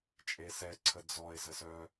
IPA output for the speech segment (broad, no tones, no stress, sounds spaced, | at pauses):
t͡ʃʼ e s ɛ ǀʰ ə d͡z ɔ e̯ z ə s œ